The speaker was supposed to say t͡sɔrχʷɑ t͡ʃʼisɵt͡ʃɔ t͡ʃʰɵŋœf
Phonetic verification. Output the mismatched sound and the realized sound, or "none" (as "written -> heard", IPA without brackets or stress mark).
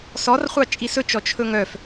t͡s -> s